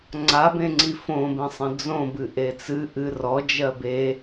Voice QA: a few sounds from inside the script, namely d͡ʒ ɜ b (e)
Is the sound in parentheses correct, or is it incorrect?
correct